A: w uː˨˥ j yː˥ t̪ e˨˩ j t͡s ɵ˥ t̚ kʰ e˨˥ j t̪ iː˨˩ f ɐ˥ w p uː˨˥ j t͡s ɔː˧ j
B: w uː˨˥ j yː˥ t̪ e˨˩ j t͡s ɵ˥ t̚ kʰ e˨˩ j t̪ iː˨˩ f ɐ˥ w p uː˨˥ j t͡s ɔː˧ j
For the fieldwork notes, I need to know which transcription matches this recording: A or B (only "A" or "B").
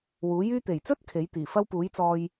A